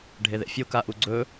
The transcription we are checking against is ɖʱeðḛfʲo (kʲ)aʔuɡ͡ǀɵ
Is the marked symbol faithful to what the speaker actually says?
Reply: no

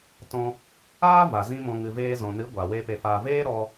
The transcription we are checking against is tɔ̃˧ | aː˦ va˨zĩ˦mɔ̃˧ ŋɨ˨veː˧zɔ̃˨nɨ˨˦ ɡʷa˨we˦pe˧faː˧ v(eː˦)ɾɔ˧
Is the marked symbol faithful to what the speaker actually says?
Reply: yes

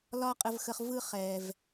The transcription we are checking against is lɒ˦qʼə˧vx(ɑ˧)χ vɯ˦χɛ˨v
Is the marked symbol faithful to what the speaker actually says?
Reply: no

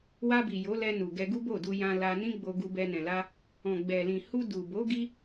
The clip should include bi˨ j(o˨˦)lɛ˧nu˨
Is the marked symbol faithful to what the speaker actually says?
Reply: yes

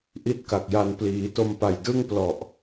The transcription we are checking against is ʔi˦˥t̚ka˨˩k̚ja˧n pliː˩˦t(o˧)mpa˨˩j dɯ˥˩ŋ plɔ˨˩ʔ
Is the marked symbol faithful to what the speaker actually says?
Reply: yes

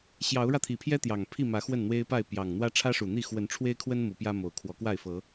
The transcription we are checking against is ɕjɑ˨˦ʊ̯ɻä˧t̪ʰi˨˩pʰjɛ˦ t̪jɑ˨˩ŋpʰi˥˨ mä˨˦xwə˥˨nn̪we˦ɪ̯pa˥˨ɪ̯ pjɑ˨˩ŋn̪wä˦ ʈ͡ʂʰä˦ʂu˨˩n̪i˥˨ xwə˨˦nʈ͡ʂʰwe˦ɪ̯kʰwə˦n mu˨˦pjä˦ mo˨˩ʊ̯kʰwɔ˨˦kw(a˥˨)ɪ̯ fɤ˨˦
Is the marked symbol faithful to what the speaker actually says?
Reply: yes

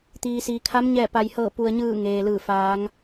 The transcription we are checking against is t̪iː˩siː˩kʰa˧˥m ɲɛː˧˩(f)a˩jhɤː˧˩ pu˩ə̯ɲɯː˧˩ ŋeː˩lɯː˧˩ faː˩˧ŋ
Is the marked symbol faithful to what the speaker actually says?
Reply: no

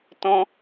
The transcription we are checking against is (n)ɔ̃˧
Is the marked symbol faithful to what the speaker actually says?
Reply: no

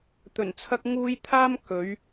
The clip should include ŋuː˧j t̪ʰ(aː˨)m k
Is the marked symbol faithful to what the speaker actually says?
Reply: no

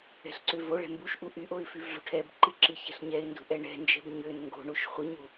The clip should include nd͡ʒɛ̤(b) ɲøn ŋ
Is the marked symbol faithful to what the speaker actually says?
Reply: yes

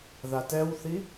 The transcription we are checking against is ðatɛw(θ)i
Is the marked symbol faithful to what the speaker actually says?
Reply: yes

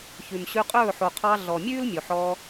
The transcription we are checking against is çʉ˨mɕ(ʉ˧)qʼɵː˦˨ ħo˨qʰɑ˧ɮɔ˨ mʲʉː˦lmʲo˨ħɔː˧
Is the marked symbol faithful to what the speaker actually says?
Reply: yes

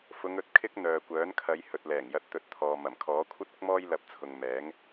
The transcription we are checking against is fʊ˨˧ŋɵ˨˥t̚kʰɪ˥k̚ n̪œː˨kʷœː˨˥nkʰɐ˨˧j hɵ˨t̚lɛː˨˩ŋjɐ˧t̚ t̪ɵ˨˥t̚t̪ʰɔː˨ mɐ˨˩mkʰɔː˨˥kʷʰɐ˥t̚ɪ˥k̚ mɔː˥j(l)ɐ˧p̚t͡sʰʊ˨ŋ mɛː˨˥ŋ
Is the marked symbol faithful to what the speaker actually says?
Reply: yes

